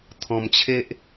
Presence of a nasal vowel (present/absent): present